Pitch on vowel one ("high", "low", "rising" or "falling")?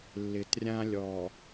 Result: low